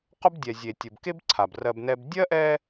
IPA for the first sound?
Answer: q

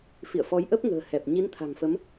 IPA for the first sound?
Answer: f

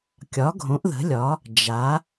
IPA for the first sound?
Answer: kʲ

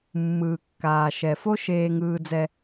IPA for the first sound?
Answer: mː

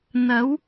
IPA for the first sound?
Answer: n̪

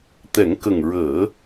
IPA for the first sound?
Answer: t̪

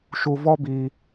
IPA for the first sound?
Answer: ʃ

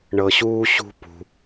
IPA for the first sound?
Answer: ɳ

